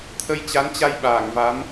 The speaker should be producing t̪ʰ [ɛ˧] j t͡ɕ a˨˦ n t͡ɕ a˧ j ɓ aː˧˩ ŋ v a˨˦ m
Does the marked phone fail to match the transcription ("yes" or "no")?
yes